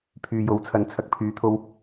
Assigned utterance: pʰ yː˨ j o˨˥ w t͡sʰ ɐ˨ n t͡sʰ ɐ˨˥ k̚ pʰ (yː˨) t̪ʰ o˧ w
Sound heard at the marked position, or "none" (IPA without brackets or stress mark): yː˨˥